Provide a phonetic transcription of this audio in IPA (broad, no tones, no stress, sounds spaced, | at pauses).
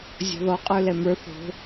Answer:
zʲ ɔ̤ ð ɔ qʼ ə˞ l ɛ m ə˞ θ o̤